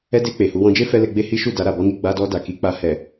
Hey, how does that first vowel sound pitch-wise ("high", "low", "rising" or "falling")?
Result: high